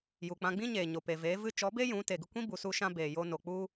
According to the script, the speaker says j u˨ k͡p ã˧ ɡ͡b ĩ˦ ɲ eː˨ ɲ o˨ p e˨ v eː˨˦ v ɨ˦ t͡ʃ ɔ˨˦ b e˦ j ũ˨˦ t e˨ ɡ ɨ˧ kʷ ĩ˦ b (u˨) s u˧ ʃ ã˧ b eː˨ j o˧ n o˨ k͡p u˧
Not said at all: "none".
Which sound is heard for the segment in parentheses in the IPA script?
u˨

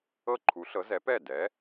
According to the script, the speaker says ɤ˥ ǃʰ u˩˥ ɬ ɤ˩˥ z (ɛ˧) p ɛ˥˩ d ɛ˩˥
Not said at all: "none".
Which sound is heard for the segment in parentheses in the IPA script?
ɛ˩˥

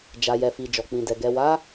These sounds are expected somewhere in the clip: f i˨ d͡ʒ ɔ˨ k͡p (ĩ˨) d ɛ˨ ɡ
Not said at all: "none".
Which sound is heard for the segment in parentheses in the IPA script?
ĩ˨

